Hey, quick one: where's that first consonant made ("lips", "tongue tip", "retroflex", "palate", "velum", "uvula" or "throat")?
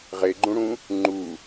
uvula